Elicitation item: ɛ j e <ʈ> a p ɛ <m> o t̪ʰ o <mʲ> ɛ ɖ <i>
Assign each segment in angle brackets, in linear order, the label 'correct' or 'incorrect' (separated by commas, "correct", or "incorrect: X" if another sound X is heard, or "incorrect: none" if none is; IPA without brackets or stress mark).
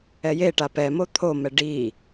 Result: correct, correct, incorrect: m, correct